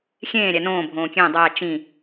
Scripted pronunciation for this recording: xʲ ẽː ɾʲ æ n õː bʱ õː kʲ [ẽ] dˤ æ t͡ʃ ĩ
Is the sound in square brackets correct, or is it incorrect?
correct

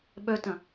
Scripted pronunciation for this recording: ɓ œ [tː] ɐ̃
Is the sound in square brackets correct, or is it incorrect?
incorrect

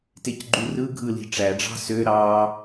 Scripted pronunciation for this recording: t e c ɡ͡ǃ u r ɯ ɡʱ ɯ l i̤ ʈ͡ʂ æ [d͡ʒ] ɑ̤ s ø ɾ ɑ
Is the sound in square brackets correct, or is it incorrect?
incorrect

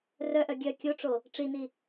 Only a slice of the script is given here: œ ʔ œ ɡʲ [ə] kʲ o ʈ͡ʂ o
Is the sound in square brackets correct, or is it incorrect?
incorrect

